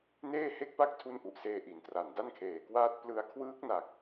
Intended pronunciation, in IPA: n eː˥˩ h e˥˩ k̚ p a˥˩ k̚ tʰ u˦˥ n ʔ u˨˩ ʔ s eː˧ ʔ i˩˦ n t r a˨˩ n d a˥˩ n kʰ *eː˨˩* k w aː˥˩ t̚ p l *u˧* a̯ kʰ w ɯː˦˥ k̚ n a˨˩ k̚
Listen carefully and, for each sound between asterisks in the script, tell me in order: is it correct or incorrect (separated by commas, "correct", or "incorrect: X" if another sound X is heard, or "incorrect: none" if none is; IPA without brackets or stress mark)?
correct, incorrect: ɯ˧